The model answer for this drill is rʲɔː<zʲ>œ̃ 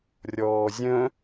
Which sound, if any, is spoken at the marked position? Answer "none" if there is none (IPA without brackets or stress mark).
zʲ